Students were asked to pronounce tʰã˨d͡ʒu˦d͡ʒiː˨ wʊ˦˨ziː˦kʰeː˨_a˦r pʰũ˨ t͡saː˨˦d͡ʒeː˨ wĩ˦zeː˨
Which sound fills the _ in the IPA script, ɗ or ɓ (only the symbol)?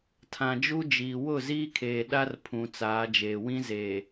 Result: ɗ